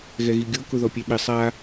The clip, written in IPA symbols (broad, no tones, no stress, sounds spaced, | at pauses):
ɣ ɛ ɣ i ɡʲ o k ʊ ð ɔ pʲ ɛ ɓ ɪ sˤ a